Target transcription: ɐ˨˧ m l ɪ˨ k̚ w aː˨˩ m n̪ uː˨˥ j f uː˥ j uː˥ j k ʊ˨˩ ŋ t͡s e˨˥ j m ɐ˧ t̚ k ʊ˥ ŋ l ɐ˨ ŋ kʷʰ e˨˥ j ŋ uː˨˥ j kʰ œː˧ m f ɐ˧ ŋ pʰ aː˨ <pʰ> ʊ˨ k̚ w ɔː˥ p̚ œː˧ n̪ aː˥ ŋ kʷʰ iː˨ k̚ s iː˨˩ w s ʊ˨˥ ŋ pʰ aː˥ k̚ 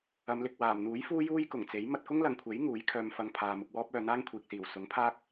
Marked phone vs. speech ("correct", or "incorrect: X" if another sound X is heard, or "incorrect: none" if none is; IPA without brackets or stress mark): incorrect: m